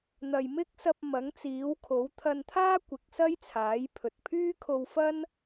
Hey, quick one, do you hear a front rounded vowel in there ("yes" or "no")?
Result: yes